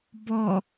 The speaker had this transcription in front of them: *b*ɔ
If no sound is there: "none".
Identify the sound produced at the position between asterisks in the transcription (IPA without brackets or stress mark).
b